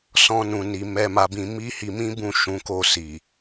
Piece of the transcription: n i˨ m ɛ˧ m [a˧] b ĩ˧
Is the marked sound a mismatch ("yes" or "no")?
no